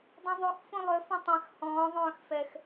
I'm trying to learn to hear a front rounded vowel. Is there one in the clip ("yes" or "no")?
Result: yes